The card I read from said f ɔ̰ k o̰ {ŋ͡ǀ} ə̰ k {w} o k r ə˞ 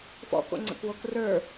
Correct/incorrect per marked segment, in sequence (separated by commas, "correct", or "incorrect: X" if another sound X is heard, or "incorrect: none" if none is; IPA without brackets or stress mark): correct, correct